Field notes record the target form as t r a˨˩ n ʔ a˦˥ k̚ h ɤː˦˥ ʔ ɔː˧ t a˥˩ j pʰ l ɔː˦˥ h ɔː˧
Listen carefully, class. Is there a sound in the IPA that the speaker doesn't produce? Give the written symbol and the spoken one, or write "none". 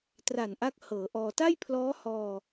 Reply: ɤː˦˥ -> ɤː˩˦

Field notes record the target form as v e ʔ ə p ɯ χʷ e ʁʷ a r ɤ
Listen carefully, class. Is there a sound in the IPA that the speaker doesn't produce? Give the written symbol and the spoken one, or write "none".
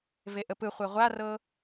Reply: none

